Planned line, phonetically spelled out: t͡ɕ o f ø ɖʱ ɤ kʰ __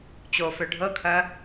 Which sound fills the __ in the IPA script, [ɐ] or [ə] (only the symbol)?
ɐ